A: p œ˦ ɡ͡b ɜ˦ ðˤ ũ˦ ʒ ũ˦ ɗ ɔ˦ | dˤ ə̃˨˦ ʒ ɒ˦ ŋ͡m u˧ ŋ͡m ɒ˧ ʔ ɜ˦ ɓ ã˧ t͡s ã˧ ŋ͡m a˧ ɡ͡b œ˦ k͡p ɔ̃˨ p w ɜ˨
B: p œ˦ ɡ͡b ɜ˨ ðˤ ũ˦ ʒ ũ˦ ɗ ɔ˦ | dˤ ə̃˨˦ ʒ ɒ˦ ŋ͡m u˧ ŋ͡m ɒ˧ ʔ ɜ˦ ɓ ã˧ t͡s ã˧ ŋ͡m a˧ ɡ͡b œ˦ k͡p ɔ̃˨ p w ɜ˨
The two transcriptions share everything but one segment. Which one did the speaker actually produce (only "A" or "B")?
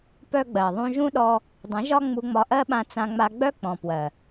B